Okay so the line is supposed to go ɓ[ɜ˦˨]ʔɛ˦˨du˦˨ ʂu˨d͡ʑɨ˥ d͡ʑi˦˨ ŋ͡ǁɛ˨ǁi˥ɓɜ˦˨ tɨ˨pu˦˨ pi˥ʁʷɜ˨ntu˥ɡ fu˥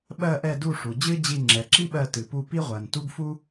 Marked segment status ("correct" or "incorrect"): correct